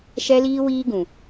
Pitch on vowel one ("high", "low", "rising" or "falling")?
high